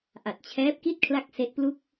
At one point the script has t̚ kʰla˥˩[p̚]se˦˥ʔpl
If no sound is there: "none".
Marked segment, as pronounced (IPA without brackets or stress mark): k̚